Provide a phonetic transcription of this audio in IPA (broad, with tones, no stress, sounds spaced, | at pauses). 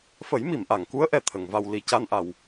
f ə˨˩˦ j m i˨˩˨ m ʔ a˨˩˨ ŋ k u˧˥ ə̯ ʔ ɛ˨˩ t̪ʰ ə˨˩˨ ŋ v a˧ w l i˨˩˦ c a˧ n ʔ a˨˩˨ w